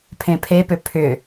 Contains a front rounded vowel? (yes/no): yes